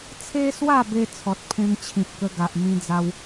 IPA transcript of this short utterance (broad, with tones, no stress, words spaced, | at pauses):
t͡sʰe˦swa˥˧be˧ t͡sʰɔ˨t̚pʰẽ˧ŋt͡ɕʰĩ˨p̚ kə˧ɡa˨ʔmĩ˧ d͡za˧w